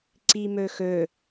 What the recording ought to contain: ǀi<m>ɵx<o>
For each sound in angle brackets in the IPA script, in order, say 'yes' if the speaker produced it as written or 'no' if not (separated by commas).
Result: yes, no